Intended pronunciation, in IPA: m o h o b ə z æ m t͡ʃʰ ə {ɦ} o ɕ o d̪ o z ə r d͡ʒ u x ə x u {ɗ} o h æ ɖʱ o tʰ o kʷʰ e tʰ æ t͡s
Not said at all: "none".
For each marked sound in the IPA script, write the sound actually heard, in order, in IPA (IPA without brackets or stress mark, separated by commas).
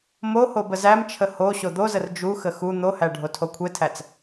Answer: h, n̪